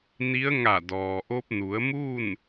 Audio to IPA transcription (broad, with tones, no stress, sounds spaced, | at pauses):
n i˧˥ ə̯ ŋ a˧˩ d ɔː˩ ʔ o˧ p̚ n u˩˧ ə̯ m uː˥˨ n